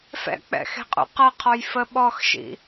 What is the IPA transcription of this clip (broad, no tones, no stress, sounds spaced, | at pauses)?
f ɛ̰ k͡p ɛ̰ x e̤ qʼ ṵ q ʌ qʰ ɔ j f ə ɓ ɔ x ʃ ḭ